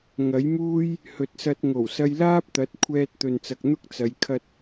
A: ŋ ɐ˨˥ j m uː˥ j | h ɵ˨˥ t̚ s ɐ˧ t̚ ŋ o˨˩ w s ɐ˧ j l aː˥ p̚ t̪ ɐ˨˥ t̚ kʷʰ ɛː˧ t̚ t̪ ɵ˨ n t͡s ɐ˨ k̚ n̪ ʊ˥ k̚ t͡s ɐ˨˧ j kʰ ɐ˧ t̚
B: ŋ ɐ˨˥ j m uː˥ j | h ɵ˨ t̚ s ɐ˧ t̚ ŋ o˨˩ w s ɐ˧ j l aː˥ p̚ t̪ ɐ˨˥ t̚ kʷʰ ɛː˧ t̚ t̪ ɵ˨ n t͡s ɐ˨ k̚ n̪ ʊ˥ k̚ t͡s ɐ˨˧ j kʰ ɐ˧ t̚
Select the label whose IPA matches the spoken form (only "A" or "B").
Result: B